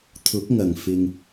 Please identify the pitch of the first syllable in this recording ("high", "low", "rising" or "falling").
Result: rising